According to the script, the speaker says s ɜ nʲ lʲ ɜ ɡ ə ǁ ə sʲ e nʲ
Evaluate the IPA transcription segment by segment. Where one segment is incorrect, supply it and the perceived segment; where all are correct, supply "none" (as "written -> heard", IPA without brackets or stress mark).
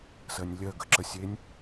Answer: none